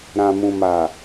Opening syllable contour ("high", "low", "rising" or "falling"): low